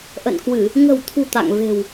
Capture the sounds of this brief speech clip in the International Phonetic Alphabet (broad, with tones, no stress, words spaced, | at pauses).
ʔə̰˧˨nkwɨ˧˩˨ | ŋə̤˨˩wt̪ʰṳ˨˩ t̪a̰˧˨ŋve̤˨˩w